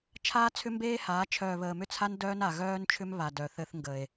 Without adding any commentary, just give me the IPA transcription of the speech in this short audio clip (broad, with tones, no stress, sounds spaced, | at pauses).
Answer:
t͡ʃʰ aː˦ t͡sʰ ʏ˦ m b eː˦ h aː˨˦ t͡ʃʰ œː˨ β əː˨ m ʏ˦˨ t͡sʰ a˦ n d œː˦ n a˨ ɣ œː˦ n t͡ʃʰ ʏ˦ m β a˨ d œ˨ θ ɘ˦ θ ŋ ɡ ə˨ e̯